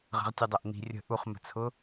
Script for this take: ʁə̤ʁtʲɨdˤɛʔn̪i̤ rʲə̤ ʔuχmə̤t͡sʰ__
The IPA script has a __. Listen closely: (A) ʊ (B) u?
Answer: A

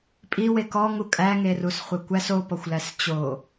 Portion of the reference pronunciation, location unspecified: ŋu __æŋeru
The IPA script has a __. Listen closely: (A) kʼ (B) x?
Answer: A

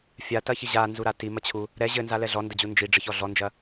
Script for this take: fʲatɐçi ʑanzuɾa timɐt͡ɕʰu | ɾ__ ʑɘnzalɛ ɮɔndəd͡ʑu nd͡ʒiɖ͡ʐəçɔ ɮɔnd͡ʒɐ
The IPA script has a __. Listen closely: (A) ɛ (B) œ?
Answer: A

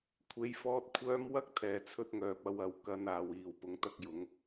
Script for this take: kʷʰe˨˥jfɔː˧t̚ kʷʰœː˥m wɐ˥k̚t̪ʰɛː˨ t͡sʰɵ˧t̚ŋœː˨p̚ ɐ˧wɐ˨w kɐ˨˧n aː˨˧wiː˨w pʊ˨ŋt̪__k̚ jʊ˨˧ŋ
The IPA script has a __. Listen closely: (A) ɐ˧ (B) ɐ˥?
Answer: A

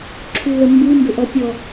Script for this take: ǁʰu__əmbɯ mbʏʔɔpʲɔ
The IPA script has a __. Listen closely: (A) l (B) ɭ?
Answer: A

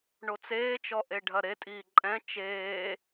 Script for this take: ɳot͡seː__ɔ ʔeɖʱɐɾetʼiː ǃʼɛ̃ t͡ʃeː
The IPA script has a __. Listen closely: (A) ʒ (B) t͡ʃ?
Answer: B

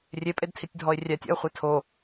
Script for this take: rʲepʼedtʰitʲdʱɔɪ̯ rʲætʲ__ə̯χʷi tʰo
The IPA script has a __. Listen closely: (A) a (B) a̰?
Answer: B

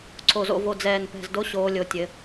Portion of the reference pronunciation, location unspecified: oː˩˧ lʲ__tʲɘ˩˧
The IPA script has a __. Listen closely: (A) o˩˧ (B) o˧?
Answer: A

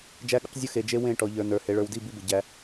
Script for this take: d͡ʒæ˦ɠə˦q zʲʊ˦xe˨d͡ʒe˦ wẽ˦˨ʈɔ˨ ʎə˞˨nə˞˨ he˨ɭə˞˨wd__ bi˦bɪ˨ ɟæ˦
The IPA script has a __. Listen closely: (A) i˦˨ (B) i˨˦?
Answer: A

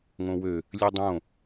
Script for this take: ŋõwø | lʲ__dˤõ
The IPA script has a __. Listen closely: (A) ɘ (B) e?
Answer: A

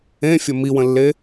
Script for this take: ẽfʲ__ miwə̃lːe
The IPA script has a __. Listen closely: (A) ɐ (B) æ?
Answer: A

